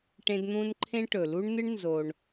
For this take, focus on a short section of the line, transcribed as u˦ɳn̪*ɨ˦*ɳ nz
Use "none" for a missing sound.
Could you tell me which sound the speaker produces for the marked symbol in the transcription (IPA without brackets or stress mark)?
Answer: ɨ˦